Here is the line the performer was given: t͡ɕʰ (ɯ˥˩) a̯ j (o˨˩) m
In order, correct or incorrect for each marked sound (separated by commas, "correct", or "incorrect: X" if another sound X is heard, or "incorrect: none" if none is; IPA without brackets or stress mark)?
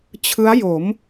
incorrect: ɯ˦˥, incorrect: o˩˦